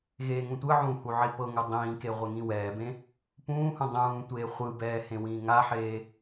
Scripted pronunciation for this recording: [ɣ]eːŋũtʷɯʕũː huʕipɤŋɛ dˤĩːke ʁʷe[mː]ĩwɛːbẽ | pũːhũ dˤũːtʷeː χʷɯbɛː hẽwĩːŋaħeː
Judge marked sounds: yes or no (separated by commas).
yes, no